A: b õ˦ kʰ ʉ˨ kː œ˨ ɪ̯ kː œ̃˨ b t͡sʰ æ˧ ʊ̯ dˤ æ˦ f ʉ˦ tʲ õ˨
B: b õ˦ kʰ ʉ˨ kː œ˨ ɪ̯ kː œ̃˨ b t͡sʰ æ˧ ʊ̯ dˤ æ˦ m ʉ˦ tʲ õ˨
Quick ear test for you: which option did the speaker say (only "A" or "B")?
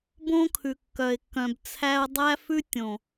A